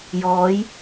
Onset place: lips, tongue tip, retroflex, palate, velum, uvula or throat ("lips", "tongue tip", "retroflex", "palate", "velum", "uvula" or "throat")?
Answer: palate